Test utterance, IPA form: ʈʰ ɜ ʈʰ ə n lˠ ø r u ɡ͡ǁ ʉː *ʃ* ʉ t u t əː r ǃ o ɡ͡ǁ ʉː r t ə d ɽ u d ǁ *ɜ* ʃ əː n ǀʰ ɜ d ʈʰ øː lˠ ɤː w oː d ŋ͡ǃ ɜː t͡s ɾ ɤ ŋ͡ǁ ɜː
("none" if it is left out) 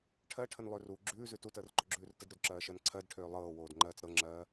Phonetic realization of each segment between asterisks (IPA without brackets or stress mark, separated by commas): z, ɜː